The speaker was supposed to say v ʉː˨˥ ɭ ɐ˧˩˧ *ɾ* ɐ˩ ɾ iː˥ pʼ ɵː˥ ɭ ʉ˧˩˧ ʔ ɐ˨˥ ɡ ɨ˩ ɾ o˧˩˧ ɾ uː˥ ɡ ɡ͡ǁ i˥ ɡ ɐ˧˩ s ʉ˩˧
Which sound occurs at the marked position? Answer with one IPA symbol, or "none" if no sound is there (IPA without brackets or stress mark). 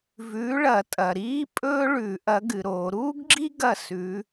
tʼ